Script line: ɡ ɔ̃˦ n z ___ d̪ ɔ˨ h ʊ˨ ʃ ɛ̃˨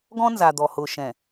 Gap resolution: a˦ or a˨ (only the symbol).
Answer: a˨